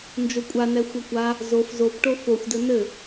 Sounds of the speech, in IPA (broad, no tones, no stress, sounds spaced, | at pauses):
n d͡ʒ o kʷʼ a n ɛ xʷ ɐ kʷ a | z o f z o b ʈ o f o xʷ d ɘ n ɘ